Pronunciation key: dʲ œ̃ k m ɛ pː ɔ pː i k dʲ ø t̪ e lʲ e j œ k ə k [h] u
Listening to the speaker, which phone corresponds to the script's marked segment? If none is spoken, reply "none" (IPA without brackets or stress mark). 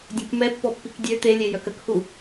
h